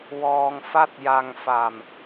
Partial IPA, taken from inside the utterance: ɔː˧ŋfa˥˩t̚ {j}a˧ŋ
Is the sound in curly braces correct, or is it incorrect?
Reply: correct